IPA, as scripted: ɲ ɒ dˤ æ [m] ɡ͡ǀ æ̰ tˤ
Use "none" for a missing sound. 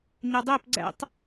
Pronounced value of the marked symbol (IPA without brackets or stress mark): p